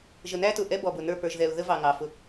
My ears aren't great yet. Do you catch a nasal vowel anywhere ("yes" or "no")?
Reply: no